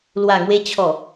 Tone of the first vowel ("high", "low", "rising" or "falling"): low